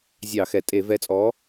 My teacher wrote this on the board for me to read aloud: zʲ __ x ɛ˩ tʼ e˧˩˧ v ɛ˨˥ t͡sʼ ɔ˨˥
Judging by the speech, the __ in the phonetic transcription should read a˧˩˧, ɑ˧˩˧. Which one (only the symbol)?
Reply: ɑ˧˩˧